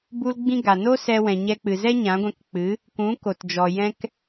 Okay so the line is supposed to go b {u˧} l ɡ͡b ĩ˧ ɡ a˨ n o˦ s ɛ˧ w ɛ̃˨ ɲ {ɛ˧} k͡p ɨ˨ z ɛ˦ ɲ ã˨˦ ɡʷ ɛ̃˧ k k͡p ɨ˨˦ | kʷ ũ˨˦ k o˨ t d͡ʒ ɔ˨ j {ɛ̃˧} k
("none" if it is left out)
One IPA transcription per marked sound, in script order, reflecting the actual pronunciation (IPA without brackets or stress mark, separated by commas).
u˧, ɛ˧, ɛ̃˧